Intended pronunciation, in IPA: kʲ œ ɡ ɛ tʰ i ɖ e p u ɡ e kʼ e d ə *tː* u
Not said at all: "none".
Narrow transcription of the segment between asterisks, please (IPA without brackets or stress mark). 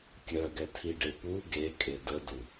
d